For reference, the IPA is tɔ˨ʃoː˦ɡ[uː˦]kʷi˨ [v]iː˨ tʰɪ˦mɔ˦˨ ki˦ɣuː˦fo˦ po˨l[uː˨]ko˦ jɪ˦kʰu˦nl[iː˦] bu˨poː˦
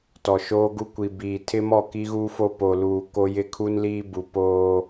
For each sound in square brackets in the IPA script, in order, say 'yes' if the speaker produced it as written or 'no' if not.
no, no, yes, yes

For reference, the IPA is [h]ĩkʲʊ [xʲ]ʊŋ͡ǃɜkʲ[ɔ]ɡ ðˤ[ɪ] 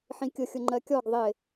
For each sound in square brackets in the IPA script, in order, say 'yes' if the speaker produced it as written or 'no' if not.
no, yes, yes, yes

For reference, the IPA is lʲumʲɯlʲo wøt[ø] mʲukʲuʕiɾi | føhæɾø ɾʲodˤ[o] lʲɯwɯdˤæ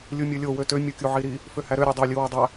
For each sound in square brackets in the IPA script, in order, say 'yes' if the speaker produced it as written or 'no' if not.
yes, yes

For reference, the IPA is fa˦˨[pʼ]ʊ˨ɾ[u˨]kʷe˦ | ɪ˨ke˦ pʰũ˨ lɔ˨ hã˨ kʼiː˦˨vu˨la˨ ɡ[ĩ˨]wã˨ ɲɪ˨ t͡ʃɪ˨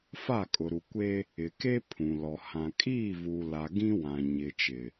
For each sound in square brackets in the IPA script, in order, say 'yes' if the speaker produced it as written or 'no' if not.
no, yes, no

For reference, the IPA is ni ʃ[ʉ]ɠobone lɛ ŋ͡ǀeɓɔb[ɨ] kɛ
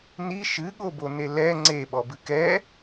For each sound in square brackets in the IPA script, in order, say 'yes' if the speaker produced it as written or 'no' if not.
no, yes

